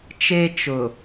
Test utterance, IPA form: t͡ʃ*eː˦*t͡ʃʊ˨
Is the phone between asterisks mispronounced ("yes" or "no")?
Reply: yes